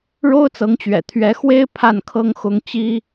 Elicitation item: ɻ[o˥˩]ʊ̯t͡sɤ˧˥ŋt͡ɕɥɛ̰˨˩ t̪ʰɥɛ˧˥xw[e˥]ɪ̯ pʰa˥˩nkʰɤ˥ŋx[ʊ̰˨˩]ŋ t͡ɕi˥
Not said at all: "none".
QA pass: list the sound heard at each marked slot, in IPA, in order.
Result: o˥, e˥, ʊ˥

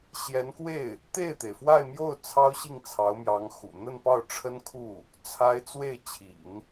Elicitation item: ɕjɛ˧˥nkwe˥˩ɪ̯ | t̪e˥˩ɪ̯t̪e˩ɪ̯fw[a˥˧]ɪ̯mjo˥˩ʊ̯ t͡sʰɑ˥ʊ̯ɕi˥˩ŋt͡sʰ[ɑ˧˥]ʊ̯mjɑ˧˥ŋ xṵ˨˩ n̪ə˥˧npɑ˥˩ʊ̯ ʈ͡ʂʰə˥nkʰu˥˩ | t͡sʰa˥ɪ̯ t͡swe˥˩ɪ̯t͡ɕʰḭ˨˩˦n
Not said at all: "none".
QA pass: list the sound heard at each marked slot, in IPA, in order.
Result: a˥˧, ɑ˧˥

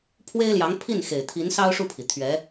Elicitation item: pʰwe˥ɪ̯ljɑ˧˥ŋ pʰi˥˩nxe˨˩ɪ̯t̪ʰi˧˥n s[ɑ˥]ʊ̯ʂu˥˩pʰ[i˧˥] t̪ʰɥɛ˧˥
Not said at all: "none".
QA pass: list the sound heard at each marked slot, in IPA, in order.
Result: ɑ˥, i˩

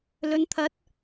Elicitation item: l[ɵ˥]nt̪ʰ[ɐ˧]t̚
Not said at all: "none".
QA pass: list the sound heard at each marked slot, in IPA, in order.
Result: ɵ˨˧, ɐ˨˥

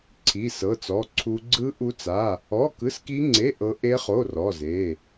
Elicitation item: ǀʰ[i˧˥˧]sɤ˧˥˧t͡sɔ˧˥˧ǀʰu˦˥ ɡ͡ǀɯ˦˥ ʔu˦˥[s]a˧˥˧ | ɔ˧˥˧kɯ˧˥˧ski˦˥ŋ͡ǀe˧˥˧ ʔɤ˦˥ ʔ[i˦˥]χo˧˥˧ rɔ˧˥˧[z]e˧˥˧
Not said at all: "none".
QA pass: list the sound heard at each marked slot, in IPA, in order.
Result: i˧˥˧, t͡s, e˦˥, z

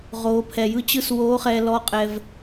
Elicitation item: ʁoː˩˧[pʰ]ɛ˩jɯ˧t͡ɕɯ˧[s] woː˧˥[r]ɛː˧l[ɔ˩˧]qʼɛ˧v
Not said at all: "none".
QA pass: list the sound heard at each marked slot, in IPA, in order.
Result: pʰ, s, χ, ɔ˧˥

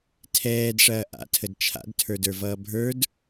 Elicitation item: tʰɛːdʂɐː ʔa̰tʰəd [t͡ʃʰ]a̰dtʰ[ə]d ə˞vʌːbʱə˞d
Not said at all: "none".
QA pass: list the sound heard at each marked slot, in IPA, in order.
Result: t͡ʃʰ, ə˞

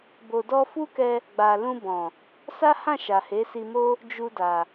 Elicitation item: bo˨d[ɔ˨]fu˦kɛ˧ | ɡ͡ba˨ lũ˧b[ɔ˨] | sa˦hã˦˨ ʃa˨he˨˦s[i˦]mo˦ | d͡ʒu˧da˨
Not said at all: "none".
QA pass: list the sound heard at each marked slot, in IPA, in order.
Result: ɔ˧, ɔ̃˨, i˧

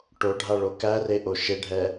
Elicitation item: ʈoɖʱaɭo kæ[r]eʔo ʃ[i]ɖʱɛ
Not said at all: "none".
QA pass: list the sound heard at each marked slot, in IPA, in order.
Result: r, e

